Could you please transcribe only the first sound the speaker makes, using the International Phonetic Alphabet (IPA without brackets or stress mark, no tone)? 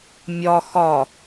mʲ